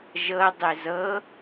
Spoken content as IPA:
ʒɤ dˤezɤ

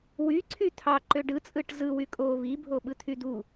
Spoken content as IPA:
wyǀʰy t̪ʰɑǃø ɖɯt͡sʼɯʈ zɯwy kʼo βibʱoɓɯt̪ʰy d̪u

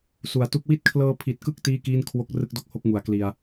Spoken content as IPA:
su˩˦a̯tu˦˥k̚ wi˦˥t̚kʰlɤː˧ pʰi˨˩t̚kɯ˦˥k̚ tiː˥˩kiː˥˩n kʰwo˦˥k̚ rɯ˥˩k̚do˥˩k̚ho˥˩k̚ ŋu˨˩a̯kli˧a̯

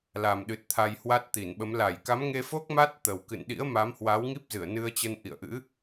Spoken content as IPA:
la˨˩mɗɨ˨˩t̚ t̪ʰa˧jhwa˦˥t̚t̪i˧˩nɓə˨˦m la˧˩jka˨˦mŋe˧fo˦˥k̚ ma˦˥t̚t̪ə˨˩wkɨ̰˧˨nɗḭ˧˥ə̯ ma˨˦mhwa˨˦wŋi˦˥p̚zɨ˧˩ə̯ nɨ˧ə̯t͡ɕə˧n ʔḭ˧˨ə̯ʔɨ̰˧˥

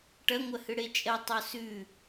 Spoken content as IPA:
ʈɐŋʷɐhɨ ɽet͡ʃʼɐ tˤosʉ

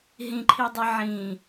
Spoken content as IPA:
ɦĩǃʰidˤi ʕĩ

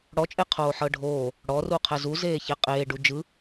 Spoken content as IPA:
ɽɔt͡ʃʼeqʰoː ħɤɖʱoː | ɽɔru qʰɛzu zeːçeqʼeːɖu d͡ʒɯ

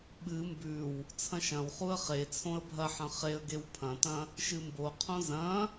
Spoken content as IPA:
ɓɨ mbʉw | t͡sʰɐ̃ʃɐ̃wχuə̯ χe t͡sʰõə̯bʱɐħɐ̃ χeə̯ ɡewpʰɐ̃tɐ̃ | ʃɨmboqʰõ zɐ̃

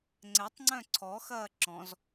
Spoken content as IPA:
ŋ͡ǀɛtˤŋ͡ǀœ̃ ǀʰɔxɐː ǁɔ̃z

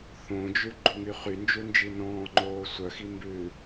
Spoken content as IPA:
θõd͡ʒʉ ɡ͡ǃuŋyχynd͡ʒu nd͡ʒinɔ̃ːŋ͡ǃoː sʷœxi mbʉ

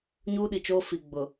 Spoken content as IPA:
ɲuː˦ɗi˨t͡ʃoː˦ fi˨ɡ͡bʊ˨

